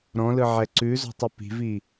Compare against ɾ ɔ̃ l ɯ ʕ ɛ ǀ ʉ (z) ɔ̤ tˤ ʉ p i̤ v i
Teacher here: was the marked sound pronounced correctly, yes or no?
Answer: yes